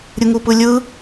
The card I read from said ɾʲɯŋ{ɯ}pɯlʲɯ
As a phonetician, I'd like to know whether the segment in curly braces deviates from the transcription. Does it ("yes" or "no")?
yes